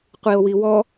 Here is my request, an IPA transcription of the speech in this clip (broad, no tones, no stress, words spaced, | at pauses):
qʷio̯wiwɔ